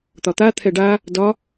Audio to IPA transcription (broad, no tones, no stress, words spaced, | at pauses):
t̪ɒt̪at̪ʰɛ ɖa | dɒ